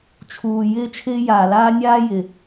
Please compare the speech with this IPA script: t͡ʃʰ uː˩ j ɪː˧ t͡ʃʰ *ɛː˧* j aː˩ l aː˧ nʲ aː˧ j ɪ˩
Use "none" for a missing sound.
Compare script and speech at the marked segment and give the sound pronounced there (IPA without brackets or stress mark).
ɪː˧